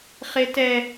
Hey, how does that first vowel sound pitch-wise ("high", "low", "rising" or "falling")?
high